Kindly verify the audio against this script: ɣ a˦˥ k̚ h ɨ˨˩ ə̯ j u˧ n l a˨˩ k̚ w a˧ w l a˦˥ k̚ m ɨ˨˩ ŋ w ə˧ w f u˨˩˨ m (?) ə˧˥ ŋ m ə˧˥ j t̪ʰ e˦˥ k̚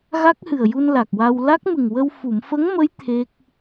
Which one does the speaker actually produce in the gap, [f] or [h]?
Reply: f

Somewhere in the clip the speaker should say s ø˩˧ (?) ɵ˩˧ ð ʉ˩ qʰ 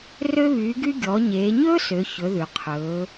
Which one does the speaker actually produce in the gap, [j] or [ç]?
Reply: ç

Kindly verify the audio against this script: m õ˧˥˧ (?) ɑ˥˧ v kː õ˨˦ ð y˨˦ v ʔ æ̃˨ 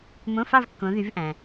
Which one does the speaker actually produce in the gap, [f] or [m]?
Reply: f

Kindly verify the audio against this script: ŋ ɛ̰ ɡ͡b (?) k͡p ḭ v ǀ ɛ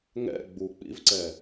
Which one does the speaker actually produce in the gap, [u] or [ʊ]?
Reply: u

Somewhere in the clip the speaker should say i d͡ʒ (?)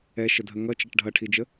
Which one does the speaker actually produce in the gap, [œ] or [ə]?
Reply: ə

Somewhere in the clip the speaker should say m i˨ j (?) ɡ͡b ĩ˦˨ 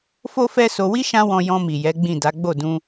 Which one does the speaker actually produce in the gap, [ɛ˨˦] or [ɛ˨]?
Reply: ɛ˨˦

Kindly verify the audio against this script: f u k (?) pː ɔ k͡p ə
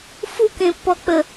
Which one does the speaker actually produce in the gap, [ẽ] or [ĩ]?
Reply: ẽ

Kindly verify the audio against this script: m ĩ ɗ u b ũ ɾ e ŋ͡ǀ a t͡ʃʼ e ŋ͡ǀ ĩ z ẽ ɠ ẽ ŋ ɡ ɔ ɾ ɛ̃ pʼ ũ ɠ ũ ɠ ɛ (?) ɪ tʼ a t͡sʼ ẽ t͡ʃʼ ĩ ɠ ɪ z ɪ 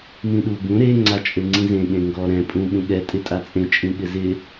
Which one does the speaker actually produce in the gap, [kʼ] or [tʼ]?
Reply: tʼ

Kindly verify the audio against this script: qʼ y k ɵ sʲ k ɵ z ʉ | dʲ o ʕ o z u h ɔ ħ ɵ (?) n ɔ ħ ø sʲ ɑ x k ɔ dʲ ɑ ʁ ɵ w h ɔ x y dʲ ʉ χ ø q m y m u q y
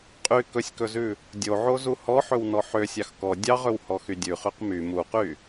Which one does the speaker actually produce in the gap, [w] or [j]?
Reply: w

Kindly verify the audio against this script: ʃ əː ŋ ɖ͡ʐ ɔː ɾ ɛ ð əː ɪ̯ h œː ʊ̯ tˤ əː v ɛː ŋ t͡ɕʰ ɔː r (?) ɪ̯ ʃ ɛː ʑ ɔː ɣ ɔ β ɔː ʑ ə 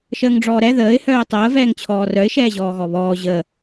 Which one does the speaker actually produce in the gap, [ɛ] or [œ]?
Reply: œ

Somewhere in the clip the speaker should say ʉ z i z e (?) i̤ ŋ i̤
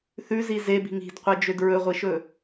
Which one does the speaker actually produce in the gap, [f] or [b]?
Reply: b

